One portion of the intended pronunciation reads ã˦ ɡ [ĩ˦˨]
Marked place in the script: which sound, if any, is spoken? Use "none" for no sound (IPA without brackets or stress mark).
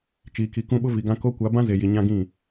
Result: ĩ˦˨